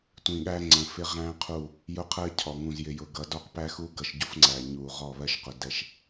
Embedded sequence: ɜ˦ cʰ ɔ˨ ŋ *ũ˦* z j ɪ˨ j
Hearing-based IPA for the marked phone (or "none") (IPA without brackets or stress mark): ũ˨